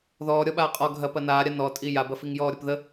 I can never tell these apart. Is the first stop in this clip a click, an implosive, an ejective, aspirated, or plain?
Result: implosive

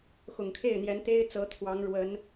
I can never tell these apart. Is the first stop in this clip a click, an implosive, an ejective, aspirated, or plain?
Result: aspirated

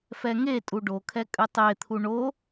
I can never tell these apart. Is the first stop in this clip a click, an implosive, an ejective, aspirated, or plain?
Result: ejective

